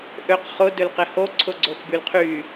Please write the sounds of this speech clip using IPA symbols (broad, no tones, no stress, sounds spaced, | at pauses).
ʔ ø q χ ʊ d ø l q ɪ h o ǀʰ ʊ ɡ͡ǀ o x b y l qʰ y